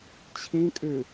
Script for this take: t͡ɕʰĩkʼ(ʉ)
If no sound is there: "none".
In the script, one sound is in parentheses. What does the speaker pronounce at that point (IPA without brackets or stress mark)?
ʉ